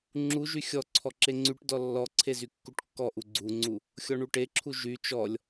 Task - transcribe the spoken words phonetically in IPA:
ŋ͡ǁuʒy xʲɔ ǀʰɔǁeŋ͡ǀyʈdɔ lːɔǀʰe zykːuʈkːɔʔu ɡ͡ǀuŋ͡ǀu | xʲɔɳuʈeǁʰu ʒy t͡ʃɔlʲ

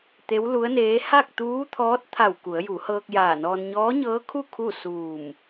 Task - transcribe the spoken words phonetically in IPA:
t̪e˧˥wlu˧˥ə̯neː˧˥ ha˥˨k̚t̪uː˧˥t̪ʰɔː˧˥t̚ t̪ʰa˧˩w ku˩˧ə̯ju˩˧hɤː˧k̚ jaː˧˩nɔː˧n ɲɔː˧˥ɲɤː˧˥kʰu˥˨ kʰu˥˨ suː˧˩m

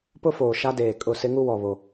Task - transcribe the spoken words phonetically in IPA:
pʊ˦foː˨ ʃa˦deː˨ kʼʊ˦˨sɪ˦ŋu˦wɔ˨ βo˦

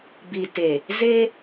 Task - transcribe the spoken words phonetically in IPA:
bi˨te˨ | ze˦

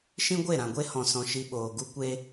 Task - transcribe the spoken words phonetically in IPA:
ʃĩ˦ɡʷe˦˨ɾã˨ɡʷe˦ hɔ̃˨sɔ̃˨ ʃi˧ɓoː˨ ɡu˦kʷe˦

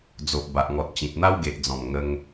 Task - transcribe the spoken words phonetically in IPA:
d͡zo˨ʔ ba˨ʔŋɔ˨t̚t͡ɕĩ˨t̚n̪a˦w ɡe˨ʔd͡zɔ̃˨˩m ŋə˧ŋ

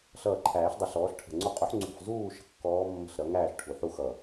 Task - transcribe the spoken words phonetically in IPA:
ɬʌː˧˩ǃʰæː˨˩˦ɬdˤʌ˨˩˦ɬ ɔː˩˥ɬʈʰə̤˧˩ŋ͡ǀu˥˨ qʼu˩˥ħŋ͡ǀṳ˧˩ħ zuː˥˨ ʃə̤˦˥kːɔː˦˥ mːə̤˦˥ɬɾʌ˩˥ŋæː˥˨ɬ ʈʰu˩ ħu˥˨xʌ˧˩

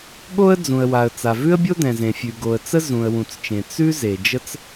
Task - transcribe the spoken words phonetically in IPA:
ɠo˥ə̯d͡zũ˩ə̯wa˩ə̯ t͡sa˩vʉ˥ə̯bʲo˥ dɛ̃˩zẽ˩fʲʉ˩ɡo˩ə̯ t͡sə˥zũ˩ə̯wũ˩t͡st͡ʃẽ˩ t͡sʉ˥ ze˩d͡ʒə˥t͡s

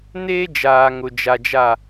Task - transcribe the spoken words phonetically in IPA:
neː˦d͡ʒaː˨ŋʊ˨ d͡ʒa˨d͡ʒa˦˨

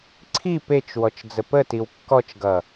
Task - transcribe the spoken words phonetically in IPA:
ǀʰi pet͡ʃ wɔt͡ʃd͡zəpətiw kːɔt͡ʃɡʌ

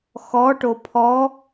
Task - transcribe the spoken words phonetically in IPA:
xɔʈo pʰɔ

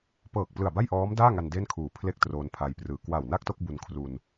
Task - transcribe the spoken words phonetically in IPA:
pɤː˨˩k̚plɯ˨˩a̯ ba˥˩jʔɔː˦˥mdaː˥˩ŋa˧n de˥˩nkʰuː˨˩ pʰle˥˩k̚ troː˧npʰa˧jprɯː˧ kwa˨˩wna˥˩k̚to˥˩k̚ bu˧nkʰru˧n

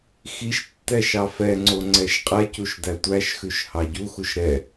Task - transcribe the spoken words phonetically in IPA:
xiʃtːɛ ʃɑfɛŋ͡ǀo ŋ͡ǀɛʃqʼɛcuʃ dætʷæʃxʉʃ hɑɟuxuʃ ɾɛ

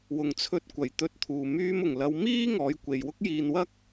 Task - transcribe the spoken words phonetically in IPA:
wʊ˨˩ŋ t͡sʰɵ˨˥t̚kʷɐ˨˩j t̪ɵ˨˥t̚t̪ʰuː˨˩ myː˧mʊ˨˩ŋlɐ˨˧w miː˥ ŋɔː˨˧jkʷe˨jwʊ˥k̚jiː˧n wɐ˥k̚

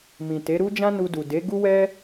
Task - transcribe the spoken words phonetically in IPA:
mĩ˨ te˨˦ɾu˦d͡ʒã˦ nu˧du˨ de˨˦ɡu˦wɛ˦

